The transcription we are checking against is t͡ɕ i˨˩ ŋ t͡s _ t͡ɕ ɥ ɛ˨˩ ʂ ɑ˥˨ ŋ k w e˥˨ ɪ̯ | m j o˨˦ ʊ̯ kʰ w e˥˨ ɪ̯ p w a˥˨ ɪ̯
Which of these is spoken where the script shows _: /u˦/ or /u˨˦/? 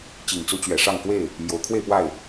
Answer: u˦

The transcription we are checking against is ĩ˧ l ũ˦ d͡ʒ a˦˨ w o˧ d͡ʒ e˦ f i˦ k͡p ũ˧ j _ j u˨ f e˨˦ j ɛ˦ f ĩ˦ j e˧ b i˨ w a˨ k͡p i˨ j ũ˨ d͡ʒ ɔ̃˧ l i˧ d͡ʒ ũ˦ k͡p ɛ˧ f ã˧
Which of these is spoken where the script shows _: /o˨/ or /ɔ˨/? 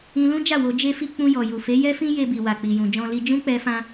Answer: ɔ˨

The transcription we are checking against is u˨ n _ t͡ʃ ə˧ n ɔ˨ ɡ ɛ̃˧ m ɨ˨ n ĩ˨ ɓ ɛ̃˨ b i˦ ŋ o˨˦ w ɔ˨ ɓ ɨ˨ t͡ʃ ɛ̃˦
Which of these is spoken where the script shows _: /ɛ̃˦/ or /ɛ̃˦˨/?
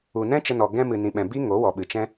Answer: ɛ̃˦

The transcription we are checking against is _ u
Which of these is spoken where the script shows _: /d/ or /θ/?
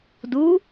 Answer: d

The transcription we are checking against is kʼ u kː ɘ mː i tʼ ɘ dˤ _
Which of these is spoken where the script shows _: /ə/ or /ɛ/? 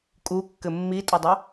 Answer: ə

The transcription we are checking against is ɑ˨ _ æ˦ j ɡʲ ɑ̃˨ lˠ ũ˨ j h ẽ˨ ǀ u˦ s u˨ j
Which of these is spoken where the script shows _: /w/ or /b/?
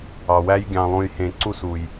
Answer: w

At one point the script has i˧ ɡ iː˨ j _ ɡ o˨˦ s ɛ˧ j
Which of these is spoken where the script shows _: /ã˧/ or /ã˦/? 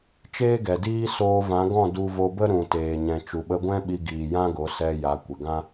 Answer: ã˦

